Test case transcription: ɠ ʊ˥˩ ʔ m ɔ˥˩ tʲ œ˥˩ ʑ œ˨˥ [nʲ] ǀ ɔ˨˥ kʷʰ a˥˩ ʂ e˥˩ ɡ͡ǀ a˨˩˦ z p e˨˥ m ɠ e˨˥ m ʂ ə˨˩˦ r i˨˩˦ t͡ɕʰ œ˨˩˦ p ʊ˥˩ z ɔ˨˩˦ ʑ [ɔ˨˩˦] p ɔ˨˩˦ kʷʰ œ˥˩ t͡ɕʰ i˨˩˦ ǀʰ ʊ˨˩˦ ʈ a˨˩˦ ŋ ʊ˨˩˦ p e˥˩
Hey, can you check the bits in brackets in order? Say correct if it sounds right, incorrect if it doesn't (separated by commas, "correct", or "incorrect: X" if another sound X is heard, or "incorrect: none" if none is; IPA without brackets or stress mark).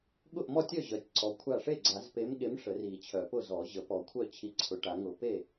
incorrect: tʲ, incorrect: ə˨˩˦